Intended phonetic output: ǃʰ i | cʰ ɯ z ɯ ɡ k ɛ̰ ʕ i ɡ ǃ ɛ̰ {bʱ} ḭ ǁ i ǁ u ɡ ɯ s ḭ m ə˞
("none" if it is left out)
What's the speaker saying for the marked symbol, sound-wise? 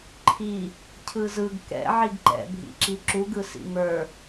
bʱ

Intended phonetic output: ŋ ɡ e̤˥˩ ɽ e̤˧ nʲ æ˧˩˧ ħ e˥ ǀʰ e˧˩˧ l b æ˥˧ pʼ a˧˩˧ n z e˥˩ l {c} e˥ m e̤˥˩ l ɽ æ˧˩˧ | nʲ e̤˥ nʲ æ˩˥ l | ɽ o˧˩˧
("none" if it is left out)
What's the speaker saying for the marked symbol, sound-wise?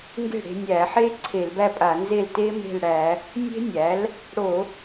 t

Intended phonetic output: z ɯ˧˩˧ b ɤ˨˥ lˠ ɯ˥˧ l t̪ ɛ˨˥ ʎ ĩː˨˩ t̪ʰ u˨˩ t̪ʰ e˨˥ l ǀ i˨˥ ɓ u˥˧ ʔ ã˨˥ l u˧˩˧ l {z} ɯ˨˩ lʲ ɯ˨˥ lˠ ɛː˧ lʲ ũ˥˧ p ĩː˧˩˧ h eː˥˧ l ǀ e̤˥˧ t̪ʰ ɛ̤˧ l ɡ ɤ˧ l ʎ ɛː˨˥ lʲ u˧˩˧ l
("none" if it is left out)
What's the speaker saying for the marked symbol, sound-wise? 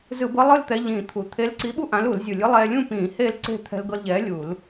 zʲ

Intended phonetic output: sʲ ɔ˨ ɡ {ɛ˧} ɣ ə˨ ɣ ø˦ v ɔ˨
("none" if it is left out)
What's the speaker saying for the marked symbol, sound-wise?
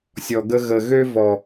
ə˧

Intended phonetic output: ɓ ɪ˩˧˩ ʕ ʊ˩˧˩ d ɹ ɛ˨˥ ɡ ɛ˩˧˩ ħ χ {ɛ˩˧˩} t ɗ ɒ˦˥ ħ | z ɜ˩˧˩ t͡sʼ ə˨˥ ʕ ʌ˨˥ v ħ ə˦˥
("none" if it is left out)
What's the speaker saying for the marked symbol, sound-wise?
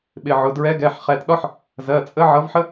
ɛ˩˧˩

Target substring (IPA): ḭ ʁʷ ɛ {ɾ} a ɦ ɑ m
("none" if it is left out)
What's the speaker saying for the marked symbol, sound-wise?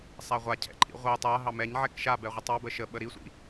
tˤ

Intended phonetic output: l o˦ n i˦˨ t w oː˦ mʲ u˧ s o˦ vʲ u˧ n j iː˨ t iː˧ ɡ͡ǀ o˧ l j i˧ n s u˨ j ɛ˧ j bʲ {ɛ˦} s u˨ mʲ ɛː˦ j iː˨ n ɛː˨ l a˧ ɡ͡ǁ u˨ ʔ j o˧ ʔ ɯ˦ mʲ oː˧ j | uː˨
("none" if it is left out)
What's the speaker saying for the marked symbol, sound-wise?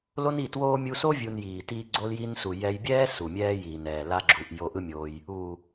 ɛː˦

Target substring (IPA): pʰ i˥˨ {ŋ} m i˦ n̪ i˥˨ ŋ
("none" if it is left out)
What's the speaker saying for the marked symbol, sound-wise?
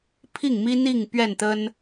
ŋ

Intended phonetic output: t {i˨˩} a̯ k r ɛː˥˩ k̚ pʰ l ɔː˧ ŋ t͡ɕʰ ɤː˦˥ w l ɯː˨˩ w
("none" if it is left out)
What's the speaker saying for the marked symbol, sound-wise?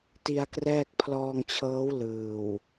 i˧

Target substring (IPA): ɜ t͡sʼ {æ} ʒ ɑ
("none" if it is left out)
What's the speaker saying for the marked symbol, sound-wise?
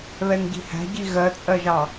ɜ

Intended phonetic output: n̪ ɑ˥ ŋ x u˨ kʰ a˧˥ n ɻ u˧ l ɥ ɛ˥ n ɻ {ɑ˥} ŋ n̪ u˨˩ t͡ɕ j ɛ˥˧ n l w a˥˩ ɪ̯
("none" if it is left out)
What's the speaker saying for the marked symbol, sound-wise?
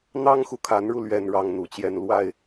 ɑ˥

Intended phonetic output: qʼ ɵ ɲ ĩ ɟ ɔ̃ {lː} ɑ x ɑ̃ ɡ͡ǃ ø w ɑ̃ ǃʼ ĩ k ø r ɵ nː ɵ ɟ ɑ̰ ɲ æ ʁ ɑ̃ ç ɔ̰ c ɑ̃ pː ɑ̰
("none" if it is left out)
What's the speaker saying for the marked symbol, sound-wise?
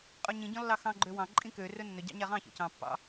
lː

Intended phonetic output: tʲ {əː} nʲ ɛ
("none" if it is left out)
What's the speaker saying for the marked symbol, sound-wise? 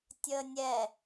əː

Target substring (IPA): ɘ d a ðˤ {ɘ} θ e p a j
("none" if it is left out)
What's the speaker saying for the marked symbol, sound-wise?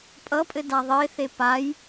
e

